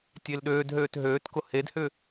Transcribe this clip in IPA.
tʲ e l ɗ øː d ɦ øː t ɦ øː t k ʊ h e d h ʏ

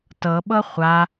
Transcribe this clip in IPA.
t ɤ ɓ ɤ χʷ a

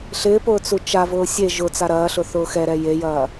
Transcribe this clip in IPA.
ɬ ɪː p ʊː t͡s u t͡ʃ a v ʊː sʲ e ʒ ʊ t͡s a ɾ ɐː ɬ ʊ θ ʊː x ɛ ɾ ɛ j e j ɐː

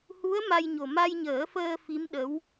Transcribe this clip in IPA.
h u˧˥ ə̯ m a˧ j ɲ o˨˩ m a˧ j ɲ əː˨˩˦ f əː˧ f i˧˥ m ɗ ə˧˥ w

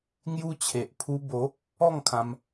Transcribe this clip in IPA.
ŋ j u˧ t͡ɕʰ e˨ ʔ pʰ u˦ b o˨˦ | ɔ˥˧ ŋ kʰ ã˧ m

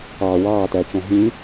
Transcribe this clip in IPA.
ɑː˨ w ɑː˦˨ t æ˨ t͡ʃ ɔ̃˨ ɦ ĩ˨˦

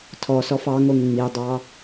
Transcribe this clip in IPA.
tʰ ɔ s ɔ f ɑ ŋ o ŋ ŋ͡m i dˤ ɑ

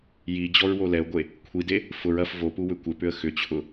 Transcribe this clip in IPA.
j i d͡ʑ ɔ ɹ w o l ɛ ʊ̯ ɡʷ e | kʷʰ i d e | f ʊ ɹ ɐ f v o p u w ʏ kʷ ɪ p ʏ ə̯ x ʏ t͡ɕʰ ʊ

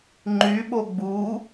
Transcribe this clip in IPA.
ŋ͡ǃ y ɓ o ɡ͡b u

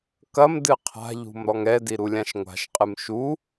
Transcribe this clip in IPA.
k ɐ m d ɨ qʰ a̤ ʎ ṳ m ɾ ɔ ŋ ɛ d i ɾ u lʲ ã ʃ ŋʷ a̤ ʃ qʼ ɨ m ʃ u

